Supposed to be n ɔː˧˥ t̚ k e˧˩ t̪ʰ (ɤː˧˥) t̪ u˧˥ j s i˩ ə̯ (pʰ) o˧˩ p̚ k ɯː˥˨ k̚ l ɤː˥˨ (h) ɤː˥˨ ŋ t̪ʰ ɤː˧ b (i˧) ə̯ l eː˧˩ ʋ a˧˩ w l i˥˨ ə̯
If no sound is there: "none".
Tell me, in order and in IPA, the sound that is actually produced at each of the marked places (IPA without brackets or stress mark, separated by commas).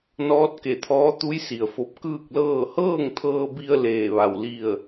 ɔː˧˥, f, h, i˧